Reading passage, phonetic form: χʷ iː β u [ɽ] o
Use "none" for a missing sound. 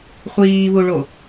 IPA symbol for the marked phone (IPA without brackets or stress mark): ɭ